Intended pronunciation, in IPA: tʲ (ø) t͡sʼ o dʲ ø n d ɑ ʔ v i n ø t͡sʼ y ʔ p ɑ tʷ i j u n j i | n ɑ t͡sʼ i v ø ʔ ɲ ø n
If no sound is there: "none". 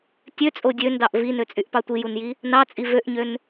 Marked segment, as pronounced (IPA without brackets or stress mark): ø